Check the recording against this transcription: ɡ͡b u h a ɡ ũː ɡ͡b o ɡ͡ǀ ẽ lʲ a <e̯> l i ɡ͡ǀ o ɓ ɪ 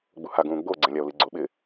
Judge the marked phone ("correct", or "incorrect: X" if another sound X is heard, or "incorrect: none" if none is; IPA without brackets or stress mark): incorrect: o̯